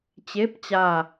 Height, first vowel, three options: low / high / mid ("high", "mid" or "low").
mid